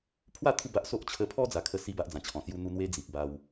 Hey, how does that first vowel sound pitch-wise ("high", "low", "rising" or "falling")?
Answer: falling